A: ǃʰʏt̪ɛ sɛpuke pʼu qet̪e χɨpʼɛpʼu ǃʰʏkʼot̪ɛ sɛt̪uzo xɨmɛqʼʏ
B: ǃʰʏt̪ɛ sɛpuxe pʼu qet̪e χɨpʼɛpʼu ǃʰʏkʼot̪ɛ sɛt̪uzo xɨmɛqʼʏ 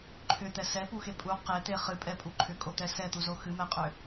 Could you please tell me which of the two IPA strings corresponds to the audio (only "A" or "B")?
B